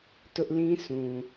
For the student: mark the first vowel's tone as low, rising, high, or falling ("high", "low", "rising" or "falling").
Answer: high